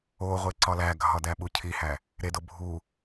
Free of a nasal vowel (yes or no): yes